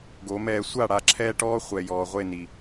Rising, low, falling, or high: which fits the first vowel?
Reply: rising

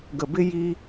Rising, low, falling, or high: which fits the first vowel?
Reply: low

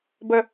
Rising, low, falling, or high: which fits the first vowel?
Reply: low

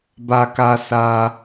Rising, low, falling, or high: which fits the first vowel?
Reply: high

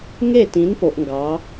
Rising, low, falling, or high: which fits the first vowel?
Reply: falling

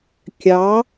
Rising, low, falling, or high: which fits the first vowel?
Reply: rising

